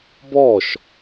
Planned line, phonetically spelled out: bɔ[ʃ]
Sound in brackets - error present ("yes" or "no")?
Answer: no